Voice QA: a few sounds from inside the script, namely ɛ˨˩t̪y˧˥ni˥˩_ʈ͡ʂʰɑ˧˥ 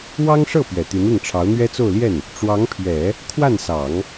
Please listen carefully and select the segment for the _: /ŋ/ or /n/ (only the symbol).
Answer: ŋ